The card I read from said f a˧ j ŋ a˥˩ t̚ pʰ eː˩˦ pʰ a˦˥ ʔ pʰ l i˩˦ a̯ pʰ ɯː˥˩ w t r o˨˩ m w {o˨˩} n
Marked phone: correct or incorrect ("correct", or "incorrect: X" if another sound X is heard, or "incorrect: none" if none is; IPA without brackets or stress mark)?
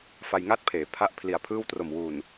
incorrect: u˨˩